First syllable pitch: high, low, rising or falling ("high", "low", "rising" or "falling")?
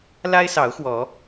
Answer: high